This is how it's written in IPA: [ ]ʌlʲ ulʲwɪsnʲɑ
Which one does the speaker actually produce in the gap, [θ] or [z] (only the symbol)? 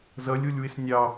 z